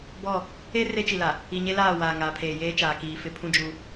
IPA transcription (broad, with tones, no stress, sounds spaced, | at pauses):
b ɔ˦˨ | e˦ r e˦ t͡ʃ i˨ l a˨ | i˨ ɲ e˦ l aː˦˨ w aː˨ ŋ aː˨ pʰ eː˨ j eː˦ t͡ʃ aː˨ k iː˨ f ɪ˦ pʰ ũ˦ d͡ʒ u˦